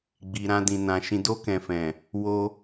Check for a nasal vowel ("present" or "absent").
present